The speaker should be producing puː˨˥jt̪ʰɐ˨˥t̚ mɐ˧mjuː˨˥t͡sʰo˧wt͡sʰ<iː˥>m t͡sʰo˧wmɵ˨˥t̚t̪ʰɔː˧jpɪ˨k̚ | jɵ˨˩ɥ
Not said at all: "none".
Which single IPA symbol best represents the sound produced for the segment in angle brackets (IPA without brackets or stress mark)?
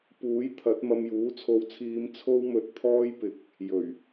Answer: iː˧